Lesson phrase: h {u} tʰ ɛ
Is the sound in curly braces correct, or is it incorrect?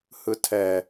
incorrect